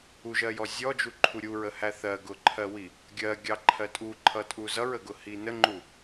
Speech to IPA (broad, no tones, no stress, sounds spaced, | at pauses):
u ʒ ɜ j ɔ zʲ ɔ d͡ʒ u ǃʰ u ɾʲ u ɹ ə h æ θ ɜ ɡ ʊ ǃʰ ɜ w i | ɡʲ ɜ ɡʲ ɑ ǃʰ ɜ tʼ u ǃʰ ʌ tʼ u z ʌ ɹ ə ɡ ʊ h i n ə ŋ͡ǃ u